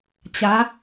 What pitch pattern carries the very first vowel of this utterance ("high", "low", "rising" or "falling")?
rising